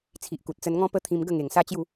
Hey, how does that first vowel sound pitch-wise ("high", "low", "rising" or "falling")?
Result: low